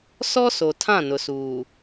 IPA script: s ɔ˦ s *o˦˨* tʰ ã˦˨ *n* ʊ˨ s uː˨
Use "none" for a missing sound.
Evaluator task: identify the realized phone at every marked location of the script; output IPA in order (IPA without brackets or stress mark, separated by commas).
o˨, n